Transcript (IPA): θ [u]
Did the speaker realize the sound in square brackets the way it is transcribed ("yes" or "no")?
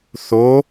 no